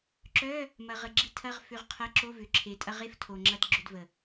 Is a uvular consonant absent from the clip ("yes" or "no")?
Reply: no